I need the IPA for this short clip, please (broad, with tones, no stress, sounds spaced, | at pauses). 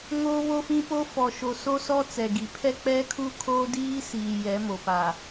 ŋ oː˦ β o˦ f ĩ˦ p o˦ f ɔ˨ ʃ o˨ s o˦ s ɔ˦ t͡s ɛ˨ ɡ i˨ pʰ ɛ˦ k͡p ɛ˦ kʰ u˦ kʰ oː˦ d iː˦ s iː˨ j ɛ˨˦ m o˨ p a˨